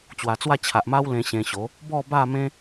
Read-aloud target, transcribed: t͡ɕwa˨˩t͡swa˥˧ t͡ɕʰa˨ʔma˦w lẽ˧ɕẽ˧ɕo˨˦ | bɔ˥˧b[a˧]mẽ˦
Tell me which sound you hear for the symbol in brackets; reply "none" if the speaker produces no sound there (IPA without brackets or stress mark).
a˥˧